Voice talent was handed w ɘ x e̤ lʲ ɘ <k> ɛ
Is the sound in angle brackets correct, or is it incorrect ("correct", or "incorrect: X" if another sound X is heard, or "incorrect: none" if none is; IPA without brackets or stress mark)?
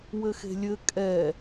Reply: incorrect: kʼ